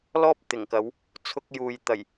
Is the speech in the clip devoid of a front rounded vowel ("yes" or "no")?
yes